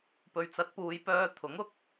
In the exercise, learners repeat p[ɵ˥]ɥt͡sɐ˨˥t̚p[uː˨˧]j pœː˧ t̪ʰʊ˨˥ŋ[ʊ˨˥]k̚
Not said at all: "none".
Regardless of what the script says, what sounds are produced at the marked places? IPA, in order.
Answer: ɵ˨, uː˨˧, ʊ˥

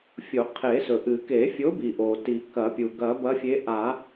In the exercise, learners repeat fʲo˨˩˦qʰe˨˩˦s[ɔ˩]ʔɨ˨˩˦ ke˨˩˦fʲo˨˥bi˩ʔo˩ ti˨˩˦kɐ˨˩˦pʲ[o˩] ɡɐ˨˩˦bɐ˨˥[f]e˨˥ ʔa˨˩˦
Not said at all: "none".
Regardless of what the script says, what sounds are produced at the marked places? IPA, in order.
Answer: ɵ˩, u˩, fʲ

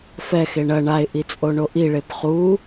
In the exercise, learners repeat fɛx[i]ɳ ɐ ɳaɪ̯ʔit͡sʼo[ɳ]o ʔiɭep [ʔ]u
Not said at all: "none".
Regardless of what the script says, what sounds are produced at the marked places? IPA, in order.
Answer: e, ɳ, χ

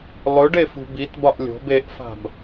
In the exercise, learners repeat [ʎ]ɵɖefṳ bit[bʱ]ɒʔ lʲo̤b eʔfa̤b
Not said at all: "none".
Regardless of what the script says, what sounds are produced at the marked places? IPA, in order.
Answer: lˠ, b

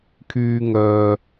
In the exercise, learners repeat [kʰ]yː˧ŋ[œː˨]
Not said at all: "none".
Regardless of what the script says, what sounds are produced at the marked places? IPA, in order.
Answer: kʰ, œː˨

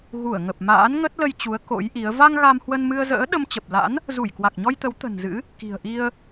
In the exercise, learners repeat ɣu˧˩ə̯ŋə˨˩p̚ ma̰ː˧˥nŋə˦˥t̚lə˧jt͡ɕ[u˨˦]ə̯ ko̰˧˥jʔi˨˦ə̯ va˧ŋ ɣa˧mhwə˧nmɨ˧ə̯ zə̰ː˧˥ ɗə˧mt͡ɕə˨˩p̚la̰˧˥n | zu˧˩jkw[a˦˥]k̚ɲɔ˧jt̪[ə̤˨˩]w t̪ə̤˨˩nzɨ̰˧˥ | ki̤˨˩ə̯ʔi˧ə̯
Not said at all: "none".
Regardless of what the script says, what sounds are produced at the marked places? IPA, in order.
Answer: u˨˦, a˨˩, ə˨˦

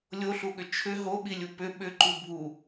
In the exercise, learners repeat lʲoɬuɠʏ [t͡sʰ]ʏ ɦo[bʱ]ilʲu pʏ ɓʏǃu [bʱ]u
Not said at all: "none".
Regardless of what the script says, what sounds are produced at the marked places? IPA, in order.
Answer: t͡ʃʰ, ɓ, bʱ

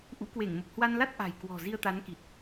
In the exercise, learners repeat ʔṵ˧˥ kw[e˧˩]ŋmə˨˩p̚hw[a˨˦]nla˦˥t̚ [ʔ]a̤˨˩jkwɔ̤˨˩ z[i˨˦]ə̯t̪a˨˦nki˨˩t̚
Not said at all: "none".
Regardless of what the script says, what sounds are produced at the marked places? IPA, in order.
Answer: e˧˩, a˧, ʔ, i˧

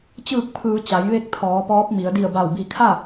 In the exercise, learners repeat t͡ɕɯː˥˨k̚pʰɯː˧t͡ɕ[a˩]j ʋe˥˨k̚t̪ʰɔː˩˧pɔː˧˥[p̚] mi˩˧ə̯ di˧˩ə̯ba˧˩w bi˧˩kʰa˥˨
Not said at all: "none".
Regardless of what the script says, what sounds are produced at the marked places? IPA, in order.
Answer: a˩˧, p̚

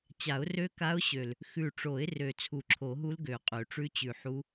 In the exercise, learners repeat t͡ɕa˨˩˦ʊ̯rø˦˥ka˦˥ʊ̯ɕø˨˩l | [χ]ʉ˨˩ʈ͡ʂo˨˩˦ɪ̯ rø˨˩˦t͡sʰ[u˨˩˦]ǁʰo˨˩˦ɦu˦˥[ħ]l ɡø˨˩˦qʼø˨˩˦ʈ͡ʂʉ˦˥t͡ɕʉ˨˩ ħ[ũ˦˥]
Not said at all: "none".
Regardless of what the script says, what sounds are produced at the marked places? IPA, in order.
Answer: x, u˨˩˦, none, u˦˥

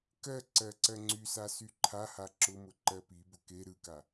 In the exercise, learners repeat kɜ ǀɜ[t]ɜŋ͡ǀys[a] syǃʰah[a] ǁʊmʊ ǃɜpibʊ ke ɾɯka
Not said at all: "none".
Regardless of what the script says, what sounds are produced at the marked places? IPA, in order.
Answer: ǀ, a, a

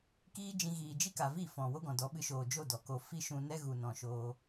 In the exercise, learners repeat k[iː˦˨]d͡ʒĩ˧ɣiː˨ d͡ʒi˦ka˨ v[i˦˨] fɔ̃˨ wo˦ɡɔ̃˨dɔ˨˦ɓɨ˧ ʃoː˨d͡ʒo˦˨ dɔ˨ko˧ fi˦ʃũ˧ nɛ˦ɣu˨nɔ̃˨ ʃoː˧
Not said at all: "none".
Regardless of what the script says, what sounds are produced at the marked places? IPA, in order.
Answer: iː˦, i˦˨

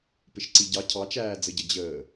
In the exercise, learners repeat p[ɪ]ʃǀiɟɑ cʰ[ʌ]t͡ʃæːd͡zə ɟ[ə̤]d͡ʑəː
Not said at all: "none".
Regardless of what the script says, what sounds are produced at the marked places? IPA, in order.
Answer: ɪ, ɑ, ə

